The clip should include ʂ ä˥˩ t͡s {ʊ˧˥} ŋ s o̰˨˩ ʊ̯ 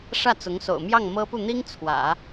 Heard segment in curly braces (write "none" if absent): ʊ˧˥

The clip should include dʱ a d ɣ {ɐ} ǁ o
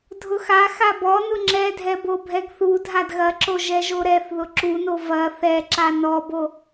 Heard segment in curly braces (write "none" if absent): ɐ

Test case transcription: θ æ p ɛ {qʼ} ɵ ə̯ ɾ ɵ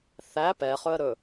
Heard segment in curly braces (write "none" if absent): χ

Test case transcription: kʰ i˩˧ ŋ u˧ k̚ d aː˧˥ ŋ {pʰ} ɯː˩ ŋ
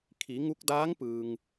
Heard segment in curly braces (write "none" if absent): p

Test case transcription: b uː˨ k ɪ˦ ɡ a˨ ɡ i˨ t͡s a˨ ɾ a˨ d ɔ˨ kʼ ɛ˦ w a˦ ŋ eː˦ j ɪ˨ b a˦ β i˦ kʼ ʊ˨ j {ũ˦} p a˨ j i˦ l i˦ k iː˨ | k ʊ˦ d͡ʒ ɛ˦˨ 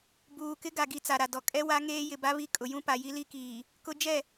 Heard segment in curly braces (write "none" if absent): ũ˦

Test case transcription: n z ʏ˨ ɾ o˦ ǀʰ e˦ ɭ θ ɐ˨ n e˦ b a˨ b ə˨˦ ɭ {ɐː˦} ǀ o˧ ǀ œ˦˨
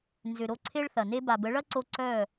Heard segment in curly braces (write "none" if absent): ɐ˦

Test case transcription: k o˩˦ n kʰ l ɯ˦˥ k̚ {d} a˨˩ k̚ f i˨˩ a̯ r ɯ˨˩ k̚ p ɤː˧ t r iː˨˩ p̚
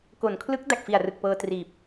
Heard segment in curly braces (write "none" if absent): d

